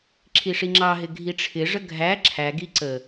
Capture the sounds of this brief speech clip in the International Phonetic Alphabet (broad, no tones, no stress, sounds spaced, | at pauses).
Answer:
ǁʰ i ʂ i ŋ͡ǁ ɑ ɦ ɪ ɡʱ i ʈ͡ʂʰ ɪ ʐ ə ɡʱ æ ǁʰ æ ɡ i ǀ ə